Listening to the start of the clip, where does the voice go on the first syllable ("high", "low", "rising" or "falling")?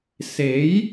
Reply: rising